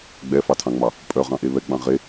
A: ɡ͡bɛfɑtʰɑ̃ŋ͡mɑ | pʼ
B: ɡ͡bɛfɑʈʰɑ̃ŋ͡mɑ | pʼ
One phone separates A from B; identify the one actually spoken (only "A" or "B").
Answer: A